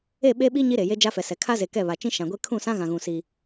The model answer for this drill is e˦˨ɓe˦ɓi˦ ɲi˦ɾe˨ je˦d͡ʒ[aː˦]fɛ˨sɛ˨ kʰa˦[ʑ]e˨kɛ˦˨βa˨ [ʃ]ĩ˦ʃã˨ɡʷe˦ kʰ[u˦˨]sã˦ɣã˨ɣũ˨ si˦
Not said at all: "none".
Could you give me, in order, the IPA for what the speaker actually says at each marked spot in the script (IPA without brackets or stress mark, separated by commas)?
a˦, z, t͡ʃ, ũ˦˨